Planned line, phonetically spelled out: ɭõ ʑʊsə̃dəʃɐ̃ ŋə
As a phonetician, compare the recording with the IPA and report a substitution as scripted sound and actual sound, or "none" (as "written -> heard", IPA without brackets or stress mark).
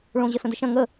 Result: ʊ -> ə